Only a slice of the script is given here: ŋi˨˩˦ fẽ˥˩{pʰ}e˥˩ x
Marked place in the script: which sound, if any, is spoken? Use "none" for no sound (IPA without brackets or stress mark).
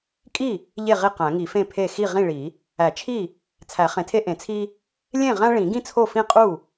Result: pʰ